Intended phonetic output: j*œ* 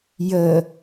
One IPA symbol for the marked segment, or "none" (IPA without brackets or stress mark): ə